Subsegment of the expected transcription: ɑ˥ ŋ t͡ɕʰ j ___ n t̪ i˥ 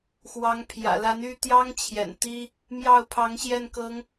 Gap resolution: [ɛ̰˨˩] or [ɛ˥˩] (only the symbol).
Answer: ɛ̰˨˩